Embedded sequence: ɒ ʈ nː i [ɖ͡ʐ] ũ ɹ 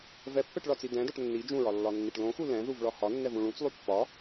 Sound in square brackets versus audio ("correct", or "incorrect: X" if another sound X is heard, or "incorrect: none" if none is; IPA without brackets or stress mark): incorrect: d͡ʒ